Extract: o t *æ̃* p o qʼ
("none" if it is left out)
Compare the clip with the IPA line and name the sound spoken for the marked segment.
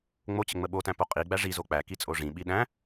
æ̃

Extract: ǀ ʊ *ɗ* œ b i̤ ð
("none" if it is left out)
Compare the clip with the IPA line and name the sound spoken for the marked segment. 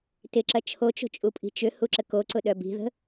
ɗ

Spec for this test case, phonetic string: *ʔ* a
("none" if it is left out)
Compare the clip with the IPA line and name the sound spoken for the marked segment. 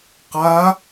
q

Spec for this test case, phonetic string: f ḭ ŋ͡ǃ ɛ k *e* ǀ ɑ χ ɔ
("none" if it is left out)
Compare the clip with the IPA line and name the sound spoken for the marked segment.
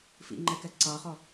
ɛ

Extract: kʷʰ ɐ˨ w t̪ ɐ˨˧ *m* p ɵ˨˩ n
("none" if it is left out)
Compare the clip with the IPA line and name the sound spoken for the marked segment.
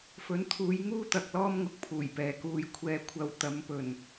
m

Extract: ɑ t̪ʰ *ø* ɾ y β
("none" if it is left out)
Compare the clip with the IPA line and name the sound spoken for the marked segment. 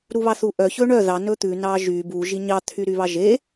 y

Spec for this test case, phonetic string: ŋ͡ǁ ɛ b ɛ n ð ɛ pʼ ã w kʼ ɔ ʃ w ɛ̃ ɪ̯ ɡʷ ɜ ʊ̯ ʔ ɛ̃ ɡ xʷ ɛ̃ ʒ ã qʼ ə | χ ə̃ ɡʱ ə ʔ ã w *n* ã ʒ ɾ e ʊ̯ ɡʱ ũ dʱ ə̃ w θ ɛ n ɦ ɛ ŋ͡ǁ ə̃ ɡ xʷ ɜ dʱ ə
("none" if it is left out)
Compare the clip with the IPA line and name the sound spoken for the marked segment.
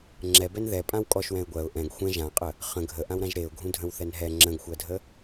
ɾ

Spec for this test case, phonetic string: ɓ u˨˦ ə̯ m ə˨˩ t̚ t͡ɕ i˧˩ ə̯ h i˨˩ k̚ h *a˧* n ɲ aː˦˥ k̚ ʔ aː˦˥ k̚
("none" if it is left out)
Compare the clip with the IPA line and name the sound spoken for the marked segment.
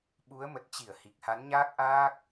a˨˦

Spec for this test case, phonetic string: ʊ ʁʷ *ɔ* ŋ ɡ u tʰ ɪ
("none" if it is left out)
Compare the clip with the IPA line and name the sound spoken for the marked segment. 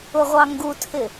ɑ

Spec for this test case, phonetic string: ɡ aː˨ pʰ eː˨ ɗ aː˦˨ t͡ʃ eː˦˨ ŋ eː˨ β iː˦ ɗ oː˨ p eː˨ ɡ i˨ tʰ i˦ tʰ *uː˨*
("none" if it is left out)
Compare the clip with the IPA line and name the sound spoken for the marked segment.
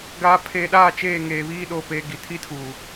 uː˨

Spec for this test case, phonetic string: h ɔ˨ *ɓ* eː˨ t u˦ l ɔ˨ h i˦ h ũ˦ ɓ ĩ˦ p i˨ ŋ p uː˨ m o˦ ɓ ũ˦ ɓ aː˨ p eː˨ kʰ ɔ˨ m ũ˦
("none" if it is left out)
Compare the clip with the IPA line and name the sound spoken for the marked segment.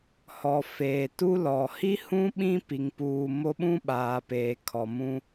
f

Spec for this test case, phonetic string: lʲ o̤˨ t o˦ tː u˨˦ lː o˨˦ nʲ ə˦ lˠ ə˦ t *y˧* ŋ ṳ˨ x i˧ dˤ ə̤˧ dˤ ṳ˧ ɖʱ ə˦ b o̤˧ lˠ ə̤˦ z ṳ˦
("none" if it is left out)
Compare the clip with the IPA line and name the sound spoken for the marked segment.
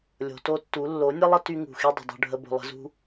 y˧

